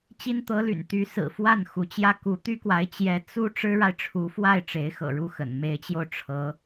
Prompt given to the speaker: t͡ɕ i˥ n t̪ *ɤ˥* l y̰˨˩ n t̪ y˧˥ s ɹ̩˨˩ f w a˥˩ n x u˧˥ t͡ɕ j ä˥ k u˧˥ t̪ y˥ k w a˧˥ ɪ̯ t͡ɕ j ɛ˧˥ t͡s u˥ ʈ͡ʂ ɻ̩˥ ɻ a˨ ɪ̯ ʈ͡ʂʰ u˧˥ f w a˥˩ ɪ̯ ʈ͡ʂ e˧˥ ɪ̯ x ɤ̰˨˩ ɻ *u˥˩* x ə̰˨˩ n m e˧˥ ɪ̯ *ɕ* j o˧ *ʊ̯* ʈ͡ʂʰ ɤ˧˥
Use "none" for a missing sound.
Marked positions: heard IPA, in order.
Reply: ɤ˧˥, u˥˩, t͡ɕ, ʊ̯

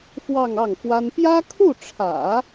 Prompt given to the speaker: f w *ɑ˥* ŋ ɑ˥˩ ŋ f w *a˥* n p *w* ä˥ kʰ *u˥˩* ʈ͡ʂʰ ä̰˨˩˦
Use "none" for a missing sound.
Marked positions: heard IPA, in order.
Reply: ɑ˥˧, a˥, j, u˥˩

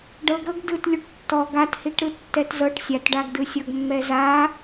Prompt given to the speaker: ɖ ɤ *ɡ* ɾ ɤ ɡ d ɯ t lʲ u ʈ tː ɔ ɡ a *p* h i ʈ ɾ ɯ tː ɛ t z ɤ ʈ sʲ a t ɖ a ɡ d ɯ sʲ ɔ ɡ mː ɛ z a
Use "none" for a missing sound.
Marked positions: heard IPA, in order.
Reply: ɡ, t

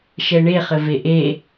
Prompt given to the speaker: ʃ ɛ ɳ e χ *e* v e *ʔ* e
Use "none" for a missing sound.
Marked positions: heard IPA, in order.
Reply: ɘ, ʔ

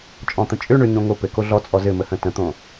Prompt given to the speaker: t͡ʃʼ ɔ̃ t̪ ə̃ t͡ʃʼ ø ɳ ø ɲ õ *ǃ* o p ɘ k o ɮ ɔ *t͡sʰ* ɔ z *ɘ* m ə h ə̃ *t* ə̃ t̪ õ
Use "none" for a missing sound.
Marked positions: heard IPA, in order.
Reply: ŋ, t͡sʼ, ɘ, t

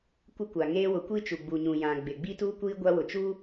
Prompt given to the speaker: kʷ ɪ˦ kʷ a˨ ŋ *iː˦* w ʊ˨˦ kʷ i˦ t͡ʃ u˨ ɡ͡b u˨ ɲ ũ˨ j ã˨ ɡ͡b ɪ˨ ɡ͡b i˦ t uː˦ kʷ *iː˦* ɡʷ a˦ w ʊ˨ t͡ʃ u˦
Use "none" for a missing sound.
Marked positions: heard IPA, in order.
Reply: eː˦, iː˦

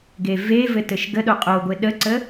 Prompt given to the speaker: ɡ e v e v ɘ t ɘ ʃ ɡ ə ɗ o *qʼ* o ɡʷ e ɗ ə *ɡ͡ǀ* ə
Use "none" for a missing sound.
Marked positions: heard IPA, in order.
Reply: qʼ, ǀ

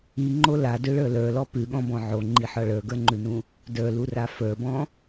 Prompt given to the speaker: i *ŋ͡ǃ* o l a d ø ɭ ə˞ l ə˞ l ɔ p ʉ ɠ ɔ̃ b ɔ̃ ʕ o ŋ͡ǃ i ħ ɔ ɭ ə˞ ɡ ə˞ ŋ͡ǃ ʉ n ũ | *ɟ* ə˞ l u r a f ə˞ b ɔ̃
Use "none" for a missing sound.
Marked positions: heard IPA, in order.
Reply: ŋ͡ǃ, d

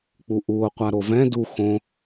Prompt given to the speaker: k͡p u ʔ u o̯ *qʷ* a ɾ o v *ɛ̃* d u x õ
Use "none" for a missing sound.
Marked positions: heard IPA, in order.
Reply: qʷ, ɛ̃

